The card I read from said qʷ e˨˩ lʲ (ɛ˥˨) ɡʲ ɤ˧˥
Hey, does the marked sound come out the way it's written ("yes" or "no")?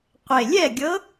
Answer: yes